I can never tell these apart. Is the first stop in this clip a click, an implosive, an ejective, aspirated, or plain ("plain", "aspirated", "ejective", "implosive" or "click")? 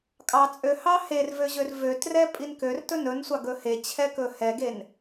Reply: ejective